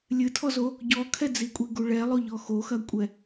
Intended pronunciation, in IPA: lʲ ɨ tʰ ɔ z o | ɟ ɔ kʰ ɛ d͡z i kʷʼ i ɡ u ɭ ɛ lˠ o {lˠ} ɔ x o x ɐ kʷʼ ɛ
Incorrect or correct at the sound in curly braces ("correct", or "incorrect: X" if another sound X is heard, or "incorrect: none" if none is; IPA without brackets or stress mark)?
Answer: incorrect: ʎ